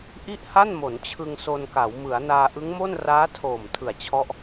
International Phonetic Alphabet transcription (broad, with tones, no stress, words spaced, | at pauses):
ʔi˥˩ʔha˥˩nmo˩˦n t͡ɕʰɯ˧ŋso˧nka˩˦w mɯ˩˦a̯naː˧ ʔɯ˦˥ŋmo˥˩n raː˦˥tʰoː˨˩m tʰɯ˨˩a̯t͡ɕʰɔ˦˥ʔ